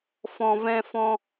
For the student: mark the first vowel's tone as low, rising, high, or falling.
low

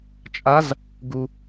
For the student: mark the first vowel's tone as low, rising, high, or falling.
rising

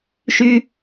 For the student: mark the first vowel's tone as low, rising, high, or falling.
high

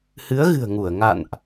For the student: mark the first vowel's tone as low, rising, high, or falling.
rising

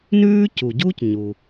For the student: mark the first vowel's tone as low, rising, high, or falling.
high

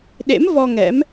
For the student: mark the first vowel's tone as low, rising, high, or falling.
rising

